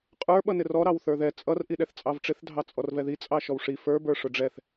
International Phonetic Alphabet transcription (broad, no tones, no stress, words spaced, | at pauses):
qʼə˞ ɓʌnɪrɔ ɾɑwθə˞ðɛ t͡sʼʌr ʔiɗɛθt͡sʼɑvʈ͡ʂɪθ dʱɑt͡sʼɔrvɛði t͡sʼɑʃɔwʂi fə˞ bə˞ʂʊɖ͡ʐɛθ